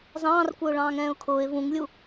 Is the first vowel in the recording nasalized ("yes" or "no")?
yes